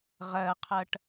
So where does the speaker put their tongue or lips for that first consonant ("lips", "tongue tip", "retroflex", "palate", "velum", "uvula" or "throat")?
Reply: uvula